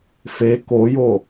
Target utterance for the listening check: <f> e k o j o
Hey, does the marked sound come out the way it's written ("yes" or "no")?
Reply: yes